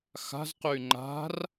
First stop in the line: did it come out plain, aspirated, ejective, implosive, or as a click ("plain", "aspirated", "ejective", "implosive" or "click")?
plain